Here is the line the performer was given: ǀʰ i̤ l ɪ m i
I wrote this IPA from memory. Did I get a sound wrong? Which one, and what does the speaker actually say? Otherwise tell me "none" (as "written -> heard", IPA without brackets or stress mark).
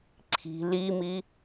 ɪ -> i